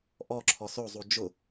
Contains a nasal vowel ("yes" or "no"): no